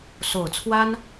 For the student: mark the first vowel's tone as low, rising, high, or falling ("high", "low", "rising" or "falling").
low